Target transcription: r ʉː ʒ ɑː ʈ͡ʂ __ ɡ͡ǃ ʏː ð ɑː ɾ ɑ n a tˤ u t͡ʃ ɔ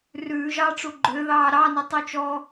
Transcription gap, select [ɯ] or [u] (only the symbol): u